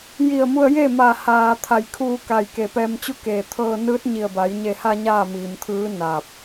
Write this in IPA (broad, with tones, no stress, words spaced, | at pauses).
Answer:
ji˧˩ə̯mu˧ə̯je˥˨ maː˧˩ haː˩ t̪ʰa˧˩jkʰuː˧ka˧˩j ke˧˩pɛː˧mt͡ɕu˥˨keː˧˩ t̪ʰɤː˧nɯː˧˥t̚ɲi˧˩ə̯ba˩˧j ɲe˧˩ha˧ ɲaː˥˨miː˩mt̪ʰɯː˧˥ na˧˩p̚